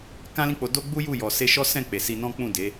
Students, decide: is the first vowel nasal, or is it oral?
nasal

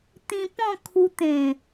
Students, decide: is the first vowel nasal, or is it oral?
nasal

